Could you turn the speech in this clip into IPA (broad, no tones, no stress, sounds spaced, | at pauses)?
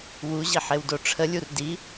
w u ʑ i ħ e w d o ʈ͡ʂʰ ə lʲ u r d i